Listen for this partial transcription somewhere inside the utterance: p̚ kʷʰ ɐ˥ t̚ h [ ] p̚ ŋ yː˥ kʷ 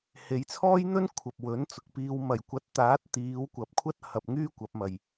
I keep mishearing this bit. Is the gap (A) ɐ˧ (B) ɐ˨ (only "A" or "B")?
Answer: A